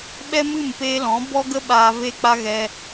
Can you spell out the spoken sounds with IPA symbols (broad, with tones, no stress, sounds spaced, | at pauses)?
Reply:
ɓ ɛ˦ m ɨ˦˨ m p eː˧ l ɔ̃˨˦ b ɔ˦ ɡ ə˦ ɓ aː˧ v e˦ k͡p a˦ ɣ ɛ˧